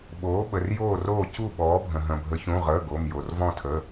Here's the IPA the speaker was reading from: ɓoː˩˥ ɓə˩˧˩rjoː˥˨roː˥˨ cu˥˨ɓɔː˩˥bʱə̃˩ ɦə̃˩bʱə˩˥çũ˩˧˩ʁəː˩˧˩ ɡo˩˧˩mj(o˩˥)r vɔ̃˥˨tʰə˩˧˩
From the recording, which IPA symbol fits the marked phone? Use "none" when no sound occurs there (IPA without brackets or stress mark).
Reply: o˩